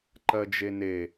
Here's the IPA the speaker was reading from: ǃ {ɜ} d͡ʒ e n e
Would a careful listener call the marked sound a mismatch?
no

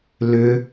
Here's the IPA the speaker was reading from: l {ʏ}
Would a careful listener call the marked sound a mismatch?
no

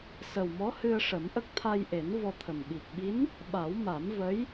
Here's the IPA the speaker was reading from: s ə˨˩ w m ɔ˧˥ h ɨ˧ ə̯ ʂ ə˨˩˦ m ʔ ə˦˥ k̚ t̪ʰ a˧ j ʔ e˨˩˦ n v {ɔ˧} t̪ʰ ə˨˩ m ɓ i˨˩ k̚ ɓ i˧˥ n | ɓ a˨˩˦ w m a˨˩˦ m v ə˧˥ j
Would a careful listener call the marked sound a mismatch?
no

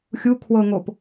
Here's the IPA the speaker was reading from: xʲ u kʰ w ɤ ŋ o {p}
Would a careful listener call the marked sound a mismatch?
no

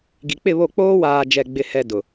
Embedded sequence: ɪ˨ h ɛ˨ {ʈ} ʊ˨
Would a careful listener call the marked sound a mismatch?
yes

